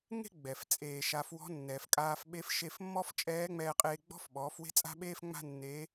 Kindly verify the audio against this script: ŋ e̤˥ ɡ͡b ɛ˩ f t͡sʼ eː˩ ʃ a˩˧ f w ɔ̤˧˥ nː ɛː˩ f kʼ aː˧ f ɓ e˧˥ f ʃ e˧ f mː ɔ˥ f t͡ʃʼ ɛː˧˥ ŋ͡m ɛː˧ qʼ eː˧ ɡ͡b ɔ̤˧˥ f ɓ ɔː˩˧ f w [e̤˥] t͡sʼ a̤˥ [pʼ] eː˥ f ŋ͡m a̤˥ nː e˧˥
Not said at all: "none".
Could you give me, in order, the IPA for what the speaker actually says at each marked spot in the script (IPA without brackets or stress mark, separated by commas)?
e̤˥, ɓ